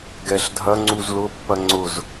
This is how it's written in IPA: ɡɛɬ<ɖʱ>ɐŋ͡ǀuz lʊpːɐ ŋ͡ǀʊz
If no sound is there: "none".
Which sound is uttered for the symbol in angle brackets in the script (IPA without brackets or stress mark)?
dʱ